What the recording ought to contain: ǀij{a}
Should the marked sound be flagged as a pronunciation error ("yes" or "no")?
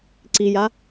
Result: no